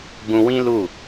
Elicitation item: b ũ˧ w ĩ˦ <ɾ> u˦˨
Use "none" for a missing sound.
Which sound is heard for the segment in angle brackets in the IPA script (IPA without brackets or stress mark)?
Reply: l